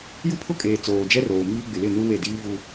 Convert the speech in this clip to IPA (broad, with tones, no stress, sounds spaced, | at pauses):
j u˦ pʰ ʊ˦ kʼ eː˨ t͡s oː˨ d͡ʒ ɛ˦ r oː˨ m iː˦ ɡ͡b ɪ˨ l ɪ˦˨ n u˦ w e˦˨ d iː˦ v u˦